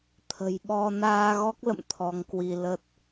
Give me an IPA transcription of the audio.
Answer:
t̪ʰ ə̤˨˩ j ɓ ɔ˧ n aː˧ ɣ ɔ˦˥ k̚ l ə̰˧˨ m t̪ʰ ɔ˨˦ ŋ k w i˧ l ə˦˥ t̚

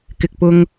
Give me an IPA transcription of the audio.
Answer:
k ɪ˨ k̚ p ʊ˧ ŋ

